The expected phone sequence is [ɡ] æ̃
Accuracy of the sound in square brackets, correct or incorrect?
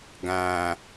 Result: correct